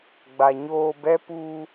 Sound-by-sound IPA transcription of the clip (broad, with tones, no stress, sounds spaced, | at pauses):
ɡ͡b a˨ ɲ oː˧ b ɛ˦ p u˧